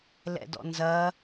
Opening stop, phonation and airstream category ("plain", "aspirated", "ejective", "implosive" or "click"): plain